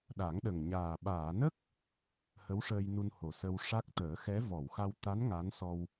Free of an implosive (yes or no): no